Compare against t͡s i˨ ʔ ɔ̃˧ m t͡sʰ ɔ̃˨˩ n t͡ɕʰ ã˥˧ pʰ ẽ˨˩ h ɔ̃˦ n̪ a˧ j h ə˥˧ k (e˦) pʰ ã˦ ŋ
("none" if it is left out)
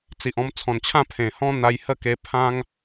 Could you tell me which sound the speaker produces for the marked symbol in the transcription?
e˧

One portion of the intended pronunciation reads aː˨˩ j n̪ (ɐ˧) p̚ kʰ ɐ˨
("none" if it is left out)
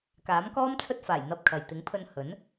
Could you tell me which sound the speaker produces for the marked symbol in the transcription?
ɐ˧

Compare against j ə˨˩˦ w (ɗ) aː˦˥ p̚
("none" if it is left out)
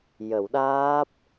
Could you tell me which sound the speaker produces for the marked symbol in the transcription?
ɗ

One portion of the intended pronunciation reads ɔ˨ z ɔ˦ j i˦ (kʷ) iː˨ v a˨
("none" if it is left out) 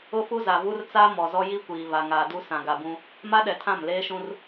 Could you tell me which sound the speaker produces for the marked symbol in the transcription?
kʷ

